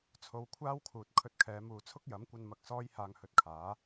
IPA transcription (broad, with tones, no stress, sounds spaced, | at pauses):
t͡sʰ o˨˧ w kʷʰ aː˥ w kʰ uː˨ t̚ kʰ ɵ˧ t̚ kʰ ɛː˨˧ m uː˨ t͡sʰ ʊ˥ k̚ j ɐ˨˥ m kʷ ɐ˧ n m ɐ˧ k̚ s ɔː˥ j h aː˧ ŋ h ɵ˧ t̚ kʰ aː˨˥